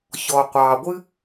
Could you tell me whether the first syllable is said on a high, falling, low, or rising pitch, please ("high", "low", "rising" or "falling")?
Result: low